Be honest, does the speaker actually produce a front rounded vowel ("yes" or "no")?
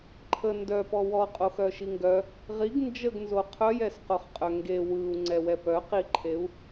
yes